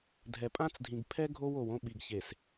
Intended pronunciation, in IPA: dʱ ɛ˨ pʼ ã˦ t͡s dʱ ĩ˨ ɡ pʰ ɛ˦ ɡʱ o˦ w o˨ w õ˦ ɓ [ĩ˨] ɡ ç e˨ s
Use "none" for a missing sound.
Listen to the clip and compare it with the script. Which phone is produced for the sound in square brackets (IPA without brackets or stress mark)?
i˨